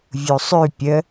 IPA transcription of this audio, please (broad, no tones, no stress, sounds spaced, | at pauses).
vʲ u sˤ ʉ pʲ ə